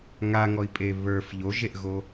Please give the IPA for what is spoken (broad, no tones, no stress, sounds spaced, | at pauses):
ŋ a ŋ ɔ i̯ pʼ e β ə˞ f ʎ o ʒ e ʔ ɣ o